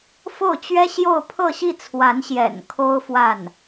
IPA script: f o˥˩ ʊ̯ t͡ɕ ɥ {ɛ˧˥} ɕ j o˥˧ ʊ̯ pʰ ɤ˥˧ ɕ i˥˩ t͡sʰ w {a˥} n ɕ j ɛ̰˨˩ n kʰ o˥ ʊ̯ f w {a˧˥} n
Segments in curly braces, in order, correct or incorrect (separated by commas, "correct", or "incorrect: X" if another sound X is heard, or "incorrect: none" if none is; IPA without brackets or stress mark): incorrect: ɛ˥, incorrect: a˧˥, incorrect: a˥˩